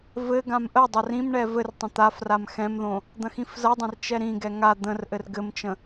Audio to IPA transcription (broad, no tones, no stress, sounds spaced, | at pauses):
v ɘ ɡ ã m ʔ ə dˤ ɐ r ĩ m ɳ ɛ v ɘ r tˤ ə̃ t̪ a f r a m x ɛ̃ m ð õ | d̪ ɐ̃ x ĩ f z ɐ dˤ ɐ̃ r t͡ʃ ɛ ɾ ĩ ɡ ɛ ŋ a d̪ ə̃ r ʔ ɘ r ɡ ɘ m t͡ʃ ə̃